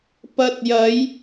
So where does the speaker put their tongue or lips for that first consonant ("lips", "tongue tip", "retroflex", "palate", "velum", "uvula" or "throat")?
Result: lips